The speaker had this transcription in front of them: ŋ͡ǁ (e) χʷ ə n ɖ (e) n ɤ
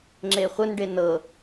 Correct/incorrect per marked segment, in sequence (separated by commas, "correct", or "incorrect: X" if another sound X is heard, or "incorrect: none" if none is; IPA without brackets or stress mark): correct, correct